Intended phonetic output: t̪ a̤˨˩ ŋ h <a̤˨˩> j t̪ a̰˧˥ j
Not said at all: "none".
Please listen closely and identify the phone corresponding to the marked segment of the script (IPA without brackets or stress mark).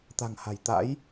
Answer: a̤˨˩